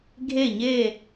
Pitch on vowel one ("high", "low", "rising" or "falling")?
falling